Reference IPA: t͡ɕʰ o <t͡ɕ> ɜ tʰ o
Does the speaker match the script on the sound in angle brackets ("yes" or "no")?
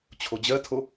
no